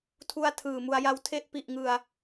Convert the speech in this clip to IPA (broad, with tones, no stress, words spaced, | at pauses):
tʰu˧a̯ tʰɯː˨˩mu˧a̯ja˦˥wtʰe˥˩ʔ pi˨˩ʔŋɯ˨˩a̯